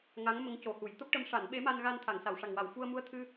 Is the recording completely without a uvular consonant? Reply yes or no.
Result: yes